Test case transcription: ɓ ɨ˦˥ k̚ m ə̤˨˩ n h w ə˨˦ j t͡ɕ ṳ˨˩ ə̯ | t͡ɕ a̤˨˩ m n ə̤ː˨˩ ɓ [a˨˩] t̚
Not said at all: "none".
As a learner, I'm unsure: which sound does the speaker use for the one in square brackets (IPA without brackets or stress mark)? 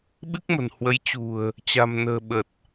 ə˨˩